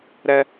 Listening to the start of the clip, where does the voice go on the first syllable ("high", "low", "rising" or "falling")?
high